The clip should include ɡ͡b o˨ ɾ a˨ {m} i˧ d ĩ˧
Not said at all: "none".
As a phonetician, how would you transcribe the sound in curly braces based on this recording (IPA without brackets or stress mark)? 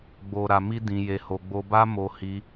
m